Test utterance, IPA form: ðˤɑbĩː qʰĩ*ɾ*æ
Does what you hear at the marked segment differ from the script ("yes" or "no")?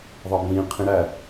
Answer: no